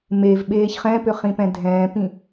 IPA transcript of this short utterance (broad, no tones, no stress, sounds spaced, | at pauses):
m e v ɓ eː ç χ ɛ̃ p ʏ χ ĩ p ɛ̃ dʱ ɛ̃ː p ĩ